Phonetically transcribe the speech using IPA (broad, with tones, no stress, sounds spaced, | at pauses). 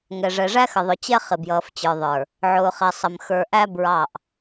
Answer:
ŋ ɛ˨ ʐ ɛ˨ ʐ æ˦ x ə˨ ðˤ ʊ˨ t͡ɕ ɛ˦ χ ɪ˨ b j ʌː˨ f t͡ɕ ə˞˨ ðˤ ə˞˨ | ʕ ʊː˨ χ ɛ˨ sˤ ə˨ m x ə˞˨ ʔ æ˦ b ɹ ɑ˦˨ ʔ